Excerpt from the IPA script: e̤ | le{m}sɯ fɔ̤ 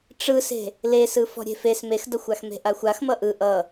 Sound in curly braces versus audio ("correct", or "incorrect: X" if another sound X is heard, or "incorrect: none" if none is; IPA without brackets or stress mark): incorrect: none